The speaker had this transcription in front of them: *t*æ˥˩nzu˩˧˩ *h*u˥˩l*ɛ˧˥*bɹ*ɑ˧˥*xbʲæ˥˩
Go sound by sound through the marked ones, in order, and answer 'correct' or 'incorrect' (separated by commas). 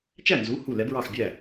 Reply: incorrect, correct, correct, incorrect